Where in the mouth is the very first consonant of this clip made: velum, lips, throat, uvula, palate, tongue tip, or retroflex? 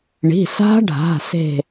retroflex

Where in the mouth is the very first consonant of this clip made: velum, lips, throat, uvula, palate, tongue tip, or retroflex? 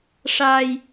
retroflex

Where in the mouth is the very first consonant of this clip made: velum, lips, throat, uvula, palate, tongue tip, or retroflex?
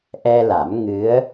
throat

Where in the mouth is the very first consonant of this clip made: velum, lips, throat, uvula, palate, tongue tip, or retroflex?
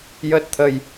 palate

